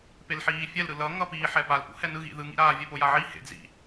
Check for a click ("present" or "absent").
absent